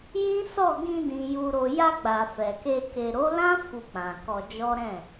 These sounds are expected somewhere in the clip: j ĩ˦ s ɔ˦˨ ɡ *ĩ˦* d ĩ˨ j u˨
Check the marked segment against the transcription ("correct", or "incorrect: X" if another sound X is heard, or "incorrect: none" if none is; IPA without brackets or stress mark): incorrect: ĩ˧